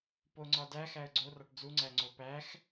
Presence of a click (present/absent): present